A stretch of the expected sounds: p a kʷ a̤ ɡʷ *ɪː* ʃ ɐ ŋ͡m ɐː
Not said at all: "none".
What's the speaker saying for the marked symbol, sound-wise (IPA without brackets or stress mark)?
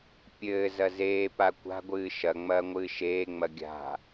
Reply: ɨː